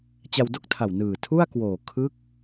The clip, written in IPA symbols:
t͡ɕ a˧ w d o˥˩ k̚ tʰ a˨˩ w n ɯː˨˩ tʰ u˥˩ a̯ k w oː˨˩ kʰ ɯ˦˥ k̚

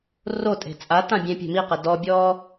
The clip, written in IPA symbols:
r o tʼ e̤ t͡sʼ a t ã bʲ ẽ pʲ e̤ m i q ɛ d ɔ bʲ ɔː

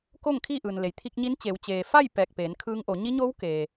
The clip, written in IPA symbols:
k o˥˨ ŋ kʰ iː˥˨ ʔ ɯː˩ n l e˩ j t̪ʰ i˧ k̚ ɲ i˧˥ n t͡ɕ e˩˧ w t͡ɕ eː˩ f a˥˨ j p ɛː˧˩ k̚ p eː˩˧ n kʰ ɯː˧˥ ŋ ʔ o˩˧ ɲ i˧˥ ɲ oː˧˥ w k eː˩

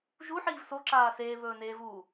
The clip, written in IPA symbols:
ʒ u ħ iː v s o ǁ aː s eː β ɵː n eː v uː

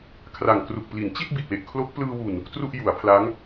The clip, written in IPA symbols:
kʰ r a˨˩ ŋ k r u˨˩ k̚ p l i˩˦ n t͡ɕ i˥˩ t̚ b i˨˩ t̚ w e˨˩ ʔ kʰ l o˦˥ k̚ p l ɯː˧ w u˨˩ n | t r u˥˩ ʔ j u˩˦ a̯ pʰ l a˦˥ ŋ

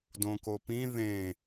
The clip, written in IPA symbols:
d õ k o p ĩ ð ẽ

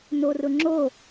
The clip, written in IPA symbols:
n o r ʊ ŋ͡ǁ o

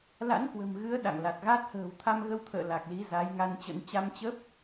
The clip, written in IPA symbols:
l a̰˧˥ n k w ə̤˨˩ m ɣ ɨ˨˦ ə̯ ɗ a̰˧˨ ŋ l a˨˩ t̚ ɣ a˦˥ t̚ h ə̤ː˨˩ w t̪ʰ a˧ m ɣ ə˧ w t̪ʰ ə̰ː˧˨ l a˨˩ k̚ l i˨˦ z a˨˦ j ŋ a˧ n t͡ɕ ə̰˧˥ n t͡ɕ a˧ m t͡ɕ ə˦˥ p̚

